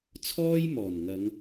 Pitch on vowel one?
high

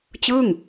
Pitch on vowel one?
falling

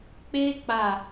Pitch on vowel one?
high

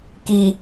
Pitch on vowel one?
low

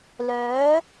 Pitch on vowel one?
rising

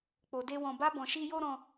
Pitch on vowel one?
low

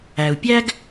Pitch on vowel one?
low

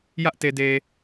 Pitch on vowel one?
high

